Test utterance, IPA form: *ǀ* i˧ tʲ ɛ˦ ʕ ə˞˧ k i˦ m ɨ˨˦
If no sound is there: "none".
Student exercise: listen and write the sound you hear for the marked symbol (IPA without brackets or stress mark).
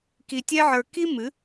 k